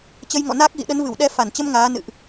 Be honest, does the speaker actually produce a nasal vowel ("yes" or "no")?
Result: no